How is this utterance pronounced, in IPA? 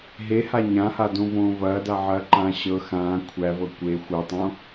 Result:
ɦeha ɲãhadõvõː vɐːdaʕɐːǃãː ɕɤ xãː kʷʰævɤ kʷe xʷɤtˤõ

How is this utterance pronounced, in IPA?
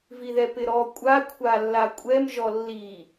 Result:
viðɛpɪɾɔ kʷʼa kʷʰalːakʷʼɛm ʒɔlːi

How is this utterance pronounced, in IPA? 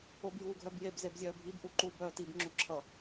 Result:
objuːɡʱœbjeb zebzʲœːbʱib ʔuǃuːbœːtib ŋ͡ǁuǁʰʌ

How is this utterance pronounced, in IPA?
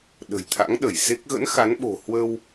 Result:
ɗə̤˨˩jt̪ʰa̰˧˥ŋɗə˧˩jse˦˥k̚ ɣə̰˧˥n xa˨˦nɓo̤˨˩ hwə˧w

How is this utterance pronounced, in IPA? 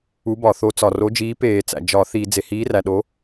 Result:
u˨˥bɒ˧˩˧θo˨˥ t͡sɒ˩ ro˨˥d͡ʒiː˨˥ peː˧˩˧t͡sæ̰˩ d͡ʒɒ˧˩˧θi˧˩˧ d͡ze˩hiː˨˥ræ˩ ɗo˨˥

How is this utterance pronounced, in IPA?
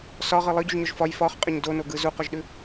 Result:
sɒʁɯ lˠɯɟʉʒɲɔʒ fɒj fɒχqʼəɲ donoɡɯ zuqɔʒɗʉ

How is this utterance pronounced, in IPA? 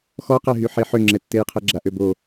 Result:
xɔqɛɦyħe ħøŋ͡ǁɛtːejqʰɛ ɡ͡ǁaʔøbo

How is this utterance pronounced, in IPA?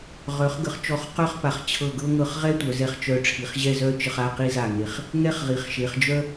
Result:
ʁœ˩˧χ ɡə˩˧χt͡ʃɔ˧˩χqœ˥˧χpa˩˧χ t͡ɕʰɤ˧˩ɡɤ˥ŋɤ˧χ ʁɛ˥tʷœ˩˧zɛ˧˩χ t͡ʃœ˧˩ʈ͡ʂʰi˩˧χ ʑɛ˥˧zœ˥ t͡ʃə˧χa˥˧ qi˥za˧˩ŋe˧˩χ | ŋɛ˥˧χʁi˩˧χʃe˩˧χ d͡ʒœ˥

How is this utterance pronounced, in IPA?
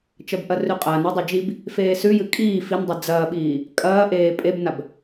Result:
t͡ʃɐbʔɐrʉqʼɐːn adˤed͡ʒib | feːsʉjɨ kʼiː fin dˤid͡zɐːɓiː | kʼɐːʔeː pʼebnab

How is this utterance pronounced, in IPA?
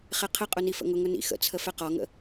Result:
χɛqʰəqʼʊ nifə̰ŋʊŋʊ nḭxə̰t͡sʰə fɛqɒŋə̰

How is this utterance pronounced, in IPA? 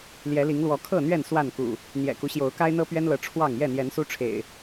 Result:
ljɛ˨˦li˨˦ŋlwɔ˨˦ kʰɤ˥˨n̪ɥɛ˥˨n swa˥˨nkṵ˨˩ | n̪jɛ̰˨˩ku˦ɕjo˨˦ʊ̯ ka˦ɪ̯n̪ɤ˦pɥɛ˦nlɤ˨˦ ʈ͡ʂʰwɑ˥˨ŋ jɛ˥˨n̪jɛ˨˦nsu˦ʈ͡ʂʰḛ˨˩ɪ̯

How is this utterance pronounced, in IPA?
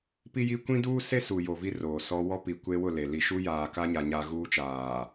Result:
pi˦ji˦ kʷĩ˦duː˦se˦ su˨ jo˨vi˦ roː˨sɔ˦ wɔ˦ pi˨ kʷe˦wʊ˦˨ le˨li˦˨ ʃu˦jaː˨ka˦ ɲa˦ɲa˦ ɣuː˦t͡ʃaː˨

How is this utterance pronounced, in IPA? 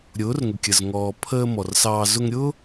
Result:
ɾʲʊː˨˦rŋʊ˨kʲə˨z ŋɔː˨pʰəː˧ mɔ˨rsɑː˧ zʊ˧ŋɾʲʊː˦

